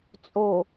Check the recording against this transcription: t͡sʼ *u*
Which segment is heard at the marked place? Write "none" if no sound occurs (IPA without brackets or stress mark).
o